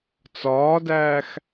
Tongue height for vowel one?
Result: low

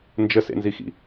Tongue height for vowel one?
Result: mid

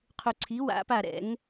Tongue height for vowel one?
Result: high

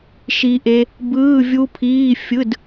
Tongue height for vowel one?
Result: high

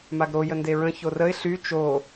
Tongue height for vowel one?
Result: low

